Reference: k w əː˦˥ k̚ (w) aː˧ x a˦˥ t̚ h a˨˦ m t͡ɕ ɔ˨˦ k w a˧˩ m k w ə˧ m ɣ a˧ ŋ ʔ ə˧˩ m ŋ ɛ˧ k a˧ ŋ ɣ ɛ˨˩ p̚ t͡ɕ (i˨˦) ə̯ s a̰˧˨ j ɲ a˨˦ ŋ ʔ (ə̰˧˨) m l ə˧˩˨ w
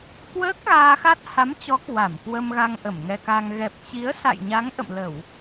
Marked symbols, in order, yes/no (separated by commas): no, yes, yes